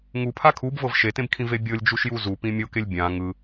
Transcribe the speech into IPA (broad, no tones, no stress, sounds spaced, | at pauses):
ŋ u pʰ a kʰ u b v ɤ v ʃ e t ẽ b kʰ ĩ v e bʲ ɤ lʲ d͡ʒ u ʃ j u z u p ĩ mʲ o k e lʲ bʲ ã ŋ ɯ